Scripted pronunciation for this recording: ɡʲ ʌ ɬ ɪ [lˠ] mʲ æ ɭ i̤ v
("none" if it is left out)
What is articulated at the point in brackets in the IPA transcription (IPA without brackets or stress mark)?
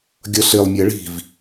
lˠ